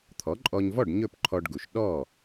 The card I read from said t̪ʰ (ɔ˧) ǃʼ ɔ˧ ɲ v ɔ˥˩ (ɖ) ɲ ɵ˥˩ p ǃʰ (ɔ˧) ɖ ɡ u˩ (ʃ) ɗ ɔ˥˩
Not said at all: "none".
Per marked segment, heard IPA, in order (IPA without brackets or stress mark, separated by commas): ɔ˩˥, ɖ, ɔ˧, ʃ